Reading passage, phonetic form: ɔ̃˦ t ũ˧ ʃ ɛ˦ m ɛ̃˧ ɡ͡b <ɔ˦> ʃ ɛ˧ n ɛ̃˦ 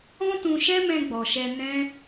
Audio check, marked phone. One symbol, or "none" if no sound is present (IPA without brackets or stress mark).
ɔ˨